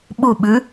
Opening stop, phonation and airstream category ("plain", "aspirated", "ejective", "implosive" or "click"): implosive